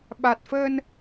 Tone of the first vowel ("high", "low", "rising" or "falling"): low